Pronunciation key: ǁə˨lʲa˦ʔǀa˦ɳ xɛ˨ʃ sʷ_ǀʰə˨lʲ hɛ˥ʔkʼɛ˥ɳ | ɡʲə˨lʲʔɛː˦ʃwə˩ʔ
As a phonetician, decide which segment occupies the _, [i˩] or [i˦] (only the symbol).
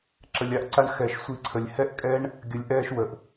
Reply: i˦